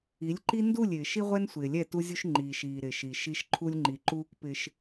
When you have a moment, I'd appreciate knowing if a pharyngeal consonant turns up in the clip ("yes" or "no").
no